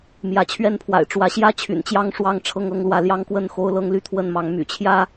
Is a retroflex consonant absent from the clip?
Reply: no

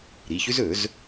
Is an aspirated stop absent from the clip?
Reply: yes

